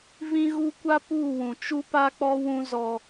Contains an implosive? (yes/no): no